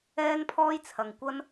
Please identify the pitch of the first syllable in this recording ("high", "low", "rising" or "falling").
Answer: high